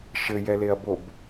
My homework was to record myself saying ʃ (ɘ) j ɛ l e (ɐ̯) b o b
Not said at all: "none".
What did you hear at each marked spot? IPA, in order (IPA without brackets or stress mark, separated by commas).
ɘ, ɐ̯